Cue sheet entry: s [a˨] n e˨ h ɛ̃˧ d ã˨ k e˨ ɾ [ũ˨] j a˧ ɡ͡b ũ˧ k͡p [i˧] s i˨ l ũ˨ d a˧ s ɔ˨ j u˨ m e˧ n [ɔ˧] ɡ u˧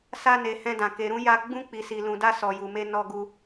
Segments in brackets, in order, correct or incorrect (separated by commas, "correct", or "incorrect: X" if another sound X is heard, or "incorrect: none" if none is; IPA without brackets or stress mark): incorrect: a˧, incorrect: ũ˧, incorrect: i˨, correct